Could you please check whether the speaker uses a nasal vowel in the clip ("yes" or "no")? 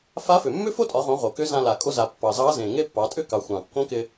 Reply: yes